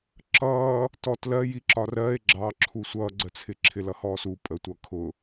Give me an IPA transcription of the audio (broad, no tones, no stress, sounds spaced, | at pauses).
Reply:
ǁ ʌː | t ɔ t l ɜ j i ǁ ɒ r ɜ e̯ ɡ͡ǁ ɑ ǁʰ u sʷ ʌː ɡ͡ǀ ə t͡sʰ ɪ ǁʰ ɪ l ʌ h ɔː s u pʼ ə tʷ ʌː kʰ ʊ